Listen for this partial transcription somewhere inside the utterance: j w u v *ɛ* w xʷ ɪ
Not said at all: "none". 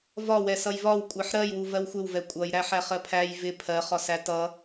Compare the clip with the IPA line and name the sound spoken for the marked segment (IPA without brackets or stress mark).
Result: ɜ